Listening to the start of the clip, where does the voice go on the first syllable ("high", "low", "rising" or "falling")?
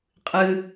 low